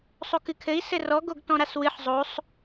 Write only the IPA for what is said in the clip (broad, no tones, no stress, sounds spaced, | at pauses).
sˤ o k ɨ kʰ ɘ i̯ s ɘ r ɔ ɡ o ɡ t ɔ̃ ɾ a s w ɨ ħ zˤ o sˤ